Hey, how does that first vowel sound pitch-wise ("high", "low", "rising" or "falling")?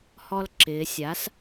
high